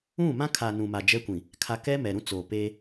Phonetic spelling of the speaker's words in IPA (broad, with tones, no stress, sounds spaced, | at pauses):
ũ˦˨ m ã˦ kʰ a˨ n ũ˨ m a˨ d͡ʒ ɛ˦ kʷ ĩ˨ | kʰ a˨ k ɛ˦ m ɛ˨ ɾ ũ˦ t͡s oː˨ p eː˦